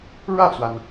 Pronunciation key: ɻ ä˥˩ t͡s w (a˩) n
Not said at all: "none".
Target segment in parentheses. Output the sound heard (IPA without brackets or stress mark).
a˩